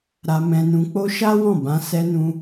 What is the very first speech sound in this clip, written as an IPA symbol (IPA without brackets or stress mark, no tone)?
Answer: ɾ